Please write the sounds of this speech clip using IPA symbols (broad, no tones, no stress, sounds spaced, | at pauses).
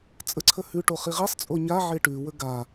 t͡sʼ ə ǀʰ ə h ʉ ʈ o χ i ʁ i sˤ t͡sʼ o ɲ a ʕ e ʈ ʉ w ə ɡ a